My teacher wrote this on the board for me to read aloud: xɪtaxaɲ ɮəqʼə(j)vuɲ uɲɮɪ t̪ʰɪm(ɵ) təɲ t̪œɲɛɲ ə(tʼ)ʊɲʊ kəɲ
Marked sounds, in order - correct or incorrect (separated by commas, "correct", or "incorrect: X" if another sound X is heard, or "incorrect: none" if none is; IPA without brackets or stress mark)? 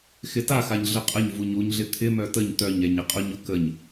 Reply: incorrect: ɲ, incorrect: œ, incorrect: qʼ